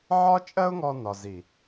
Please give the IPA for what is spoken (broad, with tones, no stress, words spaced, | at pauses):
ʕɒ˦t͡ʃʼɜ˦ʊ̯ŋɔ˧ nɒ˧ zi˨